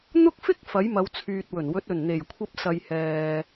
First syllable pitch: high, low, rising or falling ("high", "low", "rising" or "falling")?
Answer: high